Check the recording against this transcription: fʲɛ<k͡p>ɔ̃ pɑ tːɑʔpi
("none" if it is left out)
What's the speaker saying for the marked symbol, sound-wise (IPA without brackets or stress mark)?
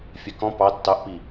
k